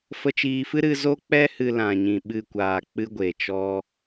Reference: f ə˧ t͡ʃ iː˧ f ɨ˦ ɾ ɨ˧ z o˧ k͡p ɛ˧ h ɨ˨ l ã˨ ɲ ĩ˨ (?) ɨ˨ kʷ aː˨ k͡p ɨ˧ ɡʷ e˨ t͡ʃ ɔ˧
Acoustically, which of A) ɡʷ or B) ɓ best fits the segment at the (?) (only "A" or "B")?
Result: B